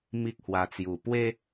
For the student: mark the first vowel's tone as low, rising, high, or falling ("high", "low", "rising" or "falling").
high